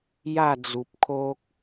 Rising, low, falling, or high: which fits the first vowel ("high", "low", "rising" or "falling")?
falling